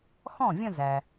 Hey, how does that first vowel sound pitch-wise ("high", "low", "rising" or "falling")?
falling